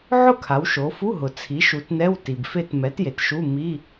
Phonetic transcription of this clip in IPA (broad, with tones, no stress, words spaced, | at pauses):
ʕʊ˥˨kʰa˩˧wʃo˩˧fu˧˥˧ ɦʊ˩t͡sʰi˩˥ ʃu˩˧tnɛ˧˥˧w ti˩bfe˥˨t mɛ˩˥t je˩tʃu˧˥˧ mi˧˥˧